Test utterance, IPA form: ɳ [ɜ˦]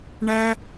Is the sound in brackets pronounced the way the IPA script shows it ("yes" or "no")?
no